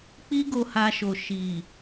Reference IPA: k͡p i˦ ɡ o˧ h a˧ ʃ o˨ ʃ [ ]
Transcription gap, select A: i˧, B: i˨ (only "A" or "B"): B